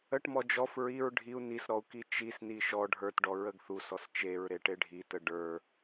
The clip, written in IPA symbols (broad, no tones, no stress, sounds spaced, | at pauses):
ə ʈ m ɔ d͡ʒ ɔ f ɹ i ɹ ɖʱ i u̯ n i s ɾ ɔ u̯ k i t͡ʃ i s n i ʃ ɔ ɖʱ ə˞ t ɖ ɔ ɹ ə ɡ θ u s ɔ s t͡ʃ e ɹ ɾ e ʈ e ɖʱ i t ə ɖ ə˞